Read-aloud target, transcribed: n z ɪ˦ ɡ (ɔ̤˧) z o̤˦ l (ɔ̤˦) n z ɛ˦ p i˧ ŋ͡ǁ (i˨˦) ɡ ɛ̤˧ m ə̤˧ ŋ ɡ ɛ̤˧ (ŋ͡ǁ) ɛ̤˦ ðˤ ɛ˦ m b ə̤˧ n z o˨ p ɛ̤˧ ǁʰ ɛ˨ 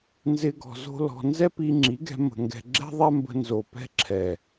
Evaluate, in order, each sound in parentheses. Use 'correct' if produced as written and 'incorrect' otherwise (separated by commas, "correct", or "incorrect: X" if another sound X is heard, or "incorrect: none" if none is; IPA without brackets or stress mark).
correct, incorrect: ɔ̤˧, correct, incorrect: ɡ͡ǁ